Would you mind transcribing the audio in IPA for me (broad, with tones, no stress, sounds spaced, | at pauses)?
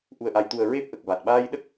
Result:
ʔ u˨˩ ə̯ ʔ a˨˩ j t̪ u˨˩ ə̯ ɹ e˦˥ p̚ ʔ ə˨˩ k̚ v a˨˩ t̚ ɓ aː˧ j ɗ ə˦˥ k̚